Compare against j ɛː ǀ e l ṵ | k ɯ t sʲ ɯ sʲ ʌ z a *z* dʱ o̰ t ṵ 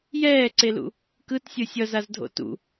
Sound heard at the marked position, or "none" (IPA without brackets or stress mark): z